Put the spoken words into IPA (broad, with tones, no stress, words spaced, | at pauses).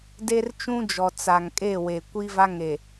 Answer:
de˦rt͡ʃũ˦d͡ʒɔ˨ t͡sa˨ŋ kʼe˦˨we˨ kʷi˦va˦ŋe˨